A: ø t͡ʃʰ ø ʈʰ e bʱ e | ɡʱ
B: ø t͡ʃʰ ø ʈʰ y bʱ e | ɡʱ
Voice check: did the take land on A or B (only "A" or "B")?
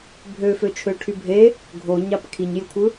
B